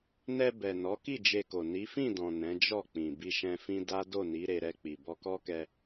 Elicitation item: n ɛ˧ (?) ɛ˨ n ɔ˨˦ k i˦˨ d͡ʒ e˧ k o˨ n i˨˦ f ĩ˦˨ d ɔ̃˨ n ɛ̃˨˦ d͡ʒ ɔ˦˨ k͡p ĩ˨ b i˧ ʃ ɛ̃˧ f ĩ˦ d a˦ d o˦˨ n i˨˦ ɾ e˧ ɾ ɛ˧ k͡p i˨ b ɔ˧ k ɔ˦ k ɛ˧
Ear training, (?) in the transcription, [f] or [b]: b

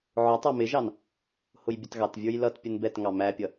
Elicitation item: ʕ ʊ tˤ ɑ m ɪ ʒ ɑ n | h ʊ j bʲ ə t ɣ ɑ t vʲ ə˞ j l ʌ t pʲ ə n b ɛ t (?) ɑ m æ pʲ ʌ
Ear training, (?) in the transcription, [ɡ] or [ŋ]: ŋ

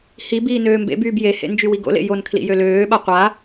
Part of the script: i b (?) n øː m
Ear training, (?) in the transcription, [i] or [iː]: iː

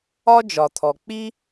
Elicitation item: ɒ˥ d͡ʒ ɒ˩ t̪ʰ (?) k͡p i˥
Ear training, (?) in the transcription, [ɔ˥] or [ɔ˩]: ɔ˩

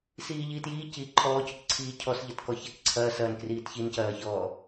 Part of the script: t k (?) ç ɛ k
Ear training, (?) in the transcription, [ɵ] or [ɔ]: ɔ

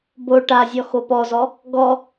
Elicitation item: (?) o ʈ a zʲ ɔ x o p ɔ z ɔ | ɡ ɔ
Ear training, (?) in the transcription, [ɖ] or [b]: b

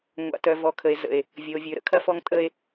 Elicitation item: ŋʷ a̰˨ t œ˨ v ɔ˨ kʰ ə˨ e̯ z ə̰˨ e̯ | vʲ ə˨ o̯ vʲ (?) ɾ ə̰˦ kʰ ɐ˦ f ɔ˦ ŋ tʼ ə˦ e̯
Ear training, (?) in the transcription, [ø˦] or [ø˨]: ø˨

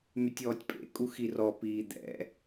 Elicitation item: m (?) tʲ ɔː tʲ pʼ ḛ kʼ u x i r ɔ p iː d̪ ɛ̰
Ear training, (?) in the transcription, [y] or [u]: y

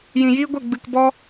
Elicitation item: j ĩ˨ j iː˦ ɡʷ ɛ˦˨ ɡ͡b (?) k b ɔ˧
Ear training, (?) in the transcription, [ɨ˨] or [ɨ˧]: ɨ˨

